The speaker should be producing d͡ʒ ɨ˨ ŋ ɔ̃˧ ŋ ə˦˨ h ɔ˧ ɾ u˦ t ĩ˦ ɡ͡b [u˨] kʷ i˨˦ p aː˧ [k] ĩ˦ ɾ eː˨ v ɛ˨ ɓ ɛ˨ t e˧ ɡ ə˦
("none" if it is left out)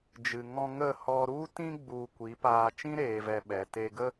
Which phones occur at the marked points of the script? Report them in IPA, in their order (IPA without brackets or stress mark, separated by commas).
u˨, t͡ʃ